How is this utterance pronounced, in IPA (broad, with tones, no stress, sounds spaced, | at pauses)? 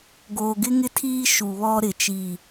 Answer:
ɡ oː˨ ɡ ɪ˦ ŋ ɪ˦ tʰ iː˦ ʃ u˨ β ɔ˦ ɾ ɪ˨ t͡ʃ i˦˨